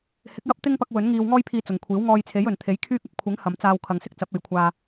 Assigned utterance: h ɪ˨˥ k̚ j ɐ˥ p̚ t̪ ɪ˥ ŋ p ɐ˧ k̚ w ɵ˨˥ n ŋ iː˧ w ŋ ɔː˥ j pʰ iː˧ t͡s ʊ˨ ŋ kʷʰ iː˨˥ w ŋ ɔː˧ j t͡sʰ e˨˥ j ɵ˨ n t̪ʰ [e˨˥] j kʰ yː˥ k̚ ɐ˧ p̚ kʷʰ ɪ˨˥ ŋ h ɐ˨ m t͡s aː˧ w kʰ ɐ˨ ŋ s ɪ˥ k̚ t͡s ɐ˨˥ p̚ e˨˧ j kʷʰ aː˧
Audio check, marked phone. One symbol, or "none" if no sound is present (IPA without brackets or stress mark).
e˨˥